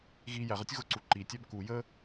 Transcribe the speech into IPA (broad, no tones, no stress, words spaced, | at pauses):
ɣi jæʁ ətʲɣʊǀu ǃitʲæb ku jə